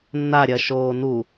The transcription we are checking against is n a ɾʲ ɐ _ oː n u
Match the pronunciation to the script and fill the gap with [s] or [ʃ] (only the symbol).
ʃ